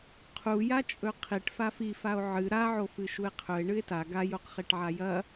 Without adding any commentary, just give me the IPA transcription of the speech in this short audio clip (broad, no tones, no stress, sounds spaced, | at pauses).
qʰ u j a t͡ʃʼ ɵ qʰ i ʈ f a f i f a o̯ ʕ ɨ ɾ a ʕ o f ɨ ʃ u e̯ qʰ ɵ e̯ ɳ ɨ e̯ t a ɡ a j o q χ e ʈ ʕ a j ɐ